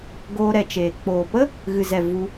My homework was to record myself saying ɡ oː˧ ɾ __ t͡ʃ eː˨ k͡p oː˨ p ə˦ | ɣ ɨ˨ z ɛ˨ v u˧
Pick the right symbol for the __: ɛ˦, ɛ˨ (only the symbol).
ɛ˨